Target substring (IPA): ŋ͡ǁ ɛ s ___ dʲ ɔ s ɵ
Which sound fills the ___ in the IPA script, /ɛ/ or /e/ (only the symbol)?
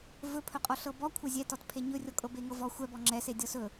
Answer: e